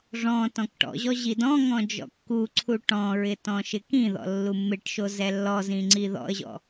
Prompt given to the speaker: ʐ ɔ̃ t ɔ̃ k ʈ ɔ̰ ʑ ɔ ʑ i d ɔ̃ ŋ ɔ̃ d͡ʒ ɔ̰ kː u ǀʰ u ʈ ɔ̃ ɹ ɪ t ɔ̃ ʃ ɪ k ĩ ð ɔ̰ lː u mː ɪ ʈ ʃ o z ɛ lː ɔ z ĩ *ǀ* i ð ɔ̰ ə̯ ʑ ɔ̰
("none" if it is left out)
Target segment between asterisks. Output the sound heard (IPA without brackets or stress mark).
ŋ͡ǀ